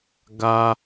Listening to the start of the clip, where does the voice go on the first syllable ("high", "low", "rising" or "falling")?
high